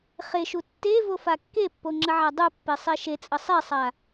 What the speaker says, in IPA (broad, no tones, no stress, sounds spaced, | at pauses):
χ e ʃ u tː e v o f a kː e pː o ŋ͡ǁ ə ʕ a dˤ u pː e sˤ e ʃ e t͡sʼ ə sˤ e sˤ a